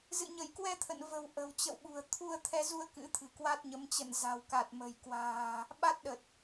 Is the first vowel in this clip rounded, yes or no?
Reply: no